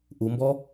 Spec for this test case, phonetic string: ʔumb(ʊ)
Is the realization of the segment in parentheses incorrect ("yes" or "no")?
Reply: yes